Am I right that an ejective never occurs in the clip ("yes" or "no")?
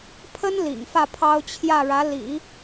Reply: yes